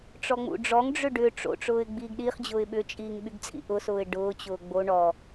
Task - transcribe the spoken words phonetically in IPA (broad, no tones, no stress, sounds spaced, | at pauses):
ʈ͡ʂ ɔ ŋ͡m ṵ ɖ͡ʐ ɔ ŋ ɖ͡ʐ ʏ ɖ ʏ ʈ͡ʂ o̰ ʈ͡ʂ ʊː ɪ̯ ɡ͡b iː ɡ ɗ i χ d͡ʑ ʊː ɪ̯ ɓ ʏ t͡ʃʼ iː ŋ ɓ y ɡ t͡sʼ ḭ ʔ ʊ s ʊː ɪ̯ ɖ ʊː t͡ɕ ʊː ɡ͡b o ɳ ɔ